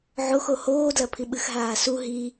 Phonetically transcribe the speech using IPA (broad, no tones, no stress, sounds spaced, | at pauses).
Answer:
ʕ o x o h oː d l ɐ pʰ i ɓ ɨ x ɦ aː s u ɦ i